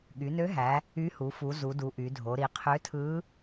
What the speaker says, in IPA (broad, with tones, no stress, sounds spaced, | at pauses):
ɠ y˩˧ n ø˧˥ ɦ æ˩˧ | y˧˥ h u˩˧ f u˩˧ z u˩˧ d u˩˧ ʔ y˩˧ dʱ o˩˧ ɾ i˩˧ qʰ ø˧˥ tʰ ɯ˧˥